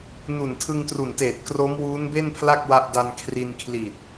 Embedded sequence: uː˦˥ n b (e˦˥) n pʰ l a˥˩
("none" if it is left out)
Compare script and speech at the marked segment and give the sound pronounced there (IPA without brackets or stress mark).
e˥˩